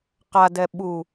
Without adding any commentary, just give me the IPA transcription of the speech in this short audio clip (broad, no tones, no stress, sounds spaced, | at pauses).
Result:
q a d ɛ ɓ u